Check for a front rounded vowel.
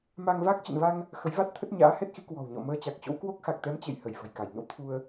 absent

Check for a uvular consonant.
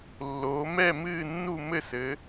absent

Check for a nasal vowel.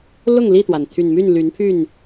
absent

